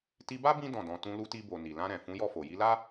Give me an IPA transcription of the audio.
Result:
ti˧ba˦ bĩ˦ dɔ̃˦˨dɔ̃˧ tũ˧lu˧ti˧bo˨ ni˨lã˧ɾɛ̃˨ fũ˨˦jɔ˦˨fo˨ ji˧la˦

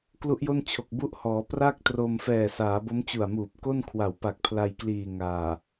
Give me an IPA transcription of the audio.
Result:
klu˦˥ʔjo˥˩nt͡ɕʰo˨˩k̚ bu˦˥ʔhɔː˩˦ pra˥˩k̚tro˧m fɛː˨˩saː˩˦bo˦˥m t͡ɕu˨˩a̯muː˨˩p̚ko˥˩nkʰwa˨˩w pa˨˩k̚pʰla˧jkliː˨˩ ŋaː˨˩

